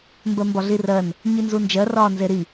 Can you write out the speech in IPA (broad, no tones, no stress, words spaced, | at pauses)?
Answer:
mbɜmbɒɮirɜn | ɲinzund͡ʒɜ rɒːnzeɾi